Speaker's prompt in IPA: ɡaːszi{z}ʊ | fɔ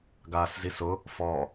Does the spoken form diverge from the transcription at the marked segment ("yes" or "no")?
yes